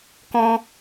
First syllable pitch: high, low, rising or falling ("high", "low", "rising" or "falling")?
high